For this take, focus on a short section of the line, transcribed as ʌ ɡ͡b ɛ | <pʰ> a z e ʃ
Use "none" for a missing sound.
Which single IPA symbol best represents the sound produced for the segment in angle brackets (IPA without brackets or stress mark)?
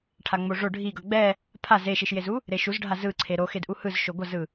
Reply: pʰ